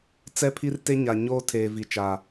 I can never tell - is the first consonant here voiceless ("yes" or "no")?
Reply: yes